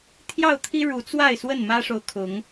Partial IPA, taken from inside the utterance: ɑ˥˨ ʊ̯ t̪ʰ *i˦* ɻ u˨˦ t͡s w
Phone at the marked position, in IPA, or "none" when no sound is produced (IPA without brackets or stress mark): i˦